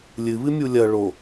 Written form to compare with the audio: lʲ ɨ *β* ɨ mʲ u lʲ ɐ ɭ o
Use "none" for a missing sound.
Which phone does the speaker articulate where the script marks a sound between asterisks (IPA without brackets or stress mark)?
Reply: β